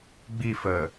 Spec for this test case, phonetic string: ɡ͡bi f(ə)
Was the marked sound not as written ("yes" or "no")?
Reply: no